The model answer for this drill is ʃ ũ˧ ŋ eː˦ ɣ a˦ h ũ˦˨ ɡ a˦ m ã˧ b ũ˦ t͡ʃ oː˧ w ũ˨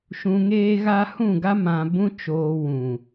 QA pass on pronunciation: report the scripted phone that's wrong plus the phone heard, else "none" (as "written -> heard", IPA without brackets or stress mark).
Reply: none